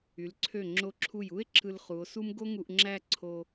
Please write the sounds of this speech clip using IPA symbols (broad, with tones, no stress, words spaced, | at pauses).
y˩˧lǀʰø˧˩ŋ͡ǁo˧˩ǁʰu˧˩j u˥e̯ǁɯ˧l χu˩˧o̯su˥m ɡo˥ŋu˧ʔŋ͡ǁæ˥˧ ǀʰo˧